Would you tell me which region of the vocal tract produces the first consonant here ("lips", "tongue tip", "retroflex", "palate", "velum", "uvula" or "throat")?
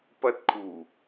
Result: lips